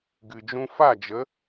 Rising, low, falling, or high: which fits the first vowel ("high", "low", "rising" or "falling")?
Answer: low